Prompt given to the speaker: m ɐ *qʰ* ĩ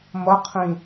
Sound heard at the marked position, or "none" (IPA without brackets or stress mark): qʰ